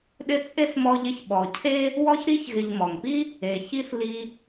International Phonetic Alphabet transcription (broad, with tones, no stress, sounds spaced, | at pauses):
ɗ ɪ˦ t͡sʼ e˥ s m ɔ˦ ʎ ɪ˦ ç ɓ ɔ˨ cʰ e˥ | w ɔ˥ ç ɾ i˥ ç ɣ ɪ˨ ʎ m ɔ˩ ŋ p i˥ | e˩ ç i˥ s l i˦